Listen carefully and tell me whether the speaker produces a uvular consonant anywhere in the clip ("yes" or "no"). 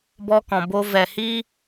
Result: no